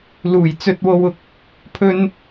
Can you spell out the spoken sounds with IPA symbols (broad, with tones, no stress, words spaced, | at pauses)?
luː˨˩j t͡sɵ˧t̚wo˧wʊ˨k̚ | pʰɵ˨n